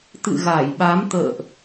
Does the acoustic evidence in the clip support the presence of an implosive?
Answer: yes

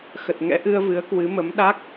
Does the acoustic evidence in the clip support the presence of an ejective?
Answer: no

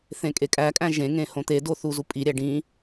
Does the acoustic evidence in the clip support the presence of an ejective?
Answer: yes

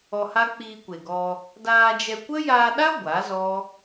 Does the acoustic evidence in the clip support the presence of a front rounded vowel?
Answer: no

